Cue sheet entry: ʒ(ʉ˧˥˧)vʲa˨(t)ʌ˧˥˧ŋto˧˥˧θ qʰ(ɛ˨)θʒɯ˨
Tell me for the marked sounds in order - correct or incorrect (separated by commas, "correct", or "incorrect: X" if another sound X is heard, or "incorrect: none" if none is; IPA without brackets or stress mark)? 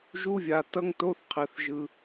incorrect: u˧˥˧, correct, correct